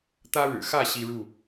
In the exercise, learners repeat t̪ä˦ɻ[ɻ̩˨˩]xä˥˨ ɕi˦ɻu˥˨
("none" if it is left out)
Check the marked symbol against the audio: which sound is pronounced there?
ɻ̩˨˩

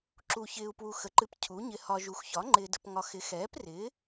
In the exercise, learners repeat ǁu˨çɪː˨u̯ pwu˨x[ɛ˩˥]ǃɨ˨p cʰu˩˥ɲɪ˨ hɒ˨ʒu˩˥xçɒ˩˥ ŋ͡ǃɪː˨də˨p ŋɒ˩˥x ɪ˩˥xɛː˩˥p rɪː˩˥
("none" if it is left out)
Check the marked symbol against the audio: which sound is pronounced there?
ə˩˥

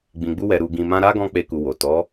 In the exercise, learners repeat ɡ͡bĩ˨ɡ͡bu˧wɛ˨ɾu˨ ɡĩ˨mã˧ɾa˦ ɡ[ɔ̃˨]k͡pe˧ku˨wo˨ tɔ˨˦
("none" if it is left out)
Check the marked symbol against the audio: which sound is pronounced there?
ɔ̃˦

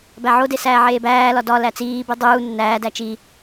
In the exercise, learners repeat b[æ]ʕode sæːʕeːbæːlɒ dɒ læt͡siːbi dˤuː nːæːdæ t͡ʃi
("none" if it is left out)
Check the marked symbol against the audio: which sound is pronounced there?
æ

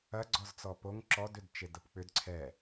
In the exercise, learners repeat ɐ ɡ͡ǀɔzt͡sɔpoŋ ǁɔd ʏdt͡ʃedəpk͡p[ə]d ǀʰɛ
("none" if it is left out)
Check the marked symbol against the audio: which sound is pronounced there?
ʏ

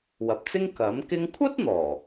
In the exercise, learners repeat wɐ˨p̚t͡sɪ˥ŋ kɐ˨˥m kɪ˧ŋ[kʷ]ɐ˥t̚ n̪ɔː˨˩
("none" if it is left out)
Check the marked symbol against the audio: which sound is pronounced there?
kʷʰ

